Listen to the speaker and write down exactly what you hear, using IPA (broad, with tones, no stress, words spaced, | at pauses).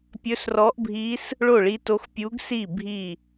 pʲɵ˧˥srɔ˧˥ʔbʱi˧˥s | ɭo˥˩ɭi˧˥to˧˥x pʲu˧˥ɡsi˥˩ bʱi˥˩